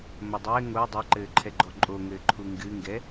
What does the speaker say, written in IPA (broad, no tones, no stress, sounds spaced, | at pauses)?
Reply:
m ɐ dˤ ɘː ŋ o dˤ ɛ ǃ ɘː ǃʰ ɛ ɡ͡ǃ ɔ ǃʼ o ŋ ɘː ǃʰ u ŋ ɡ ɨ ŋ ɡ ɛ